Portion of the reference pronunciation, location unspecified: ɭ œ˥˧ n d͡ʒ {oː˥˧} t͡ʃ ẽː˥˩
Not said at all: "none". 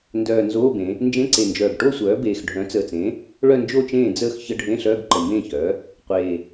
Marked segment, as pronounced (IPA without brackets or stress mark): o˥˧